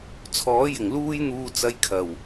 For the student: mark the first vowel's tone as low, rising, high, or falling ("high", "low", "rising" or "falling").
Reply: rising